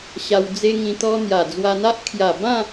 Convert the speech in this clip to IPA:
ɕ a˧ w d͡z e˦ ŋ ĩ˧ t̪ ɔ˦ n̪ j a˨˩ d͡z w a˧ n̪ a˦ ʔ kʰ j a˨˩ b ã˥˧

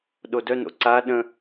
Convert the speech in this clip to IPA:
ɗ o d œ n o̰ ǀ a ɗ ə̃

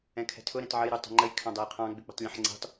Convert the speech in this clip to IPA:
ɛ̃ kʰ ɛ̤ tʰ ʊ ɾ ɛ̃ t ʕ ə j ɾ u tˤ ə̤ ŋ͡ǃ ə j kʰ ɑ̃ dˤ ɛ j qʰ ɑ̃ ɡ͡b ɪ k͡p ə̤ tˤ lʲ ũ ħ ŋ͡ǀ ɛ̤ tˤ

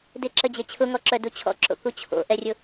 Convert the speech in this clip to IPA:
d ɪ ǁ ə d͡ʑ e t͡ɕʰ ʊ ŋ ɔ ǁ œ d u t͡ɕʰ ɔ̰ ǁ o̰ k u t͡ɕʰ o̰ ʔ ɛ rʲ ʊ

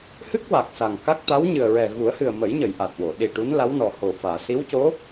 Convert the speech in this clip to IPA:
h ɨ˦˥ k̚ w a˨˩ k̚ s a˨˩ ŋ k a˦˥ k̚ t̪ a˧˥ w ɲ ɨ˨˩ ə̯ ɹ ɛ˨˩ ɣ u˨˩˦ ə̯ h ɨ˨˩ ə̯ m ə˨˩˦ j ɲ ə˨˩˨ j ʔ a˨˩ t̚ w o˨˩˨ ɗ i˨˩ ʈ u˧˥ n l a˧˥ w n ɔ˨˩ h o˨˩ f aː˨˩˨ s i˧˥ w c o˧˥

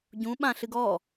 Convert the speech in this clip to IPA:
ɟ ũ ɓ ã ɬ ɨ ɡ ɔ

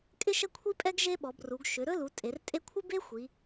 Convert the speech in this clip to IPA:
kʼ ɪ˥ ʃ ə˥ kʷʰ i˥ pʼ ɛ˥ ɡ ʒ e˥ ɓ ɔ˩˧ b r u˩˧ ɡ ʃ ʏ˩˧ ɾ ɵ˥ l u˩˧ tʼ e˩˧ r tʼ e˥ kʷʰ ɪ˥ b e˥ xʷ i˩˧

